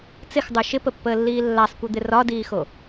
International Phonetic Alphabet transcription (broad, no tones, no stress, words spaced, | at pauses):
t͡sɪxdˤʉ ʃɪpəpːəːlːiː lːasˤkʷɨd̪ɪ rɒdiːxo